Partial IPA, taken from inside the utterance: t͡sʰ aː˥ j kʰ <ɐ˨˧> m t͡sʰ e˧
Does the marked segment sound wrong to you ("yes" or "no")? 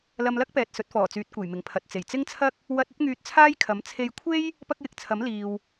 yes